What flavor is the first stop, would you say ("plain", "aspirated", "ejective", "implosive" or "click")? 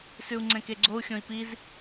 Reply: click